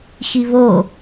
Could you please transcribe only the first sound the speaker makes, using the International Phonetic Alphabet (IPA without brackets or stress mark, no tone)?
x